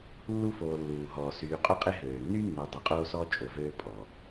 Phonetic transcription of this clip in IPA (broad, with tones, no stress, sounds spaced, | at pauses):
lː u˥ f oː˨ lː uː˩ ɦ ɔː˩ s yː˨ qʼ o˦ qʼ e˦ ɦ øː˩ nː y˥ nː u˨ dˤ y˨ qʼ oː˥ s ɔː˥ t͡ʃʼ o˨ v øː˥ pʼ ɔ˩